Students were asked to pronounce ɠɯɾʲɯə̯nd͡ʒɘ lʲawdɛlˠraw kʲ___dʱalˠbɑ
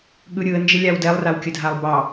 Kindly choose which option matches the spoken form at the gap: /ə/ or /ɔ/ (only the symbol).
ə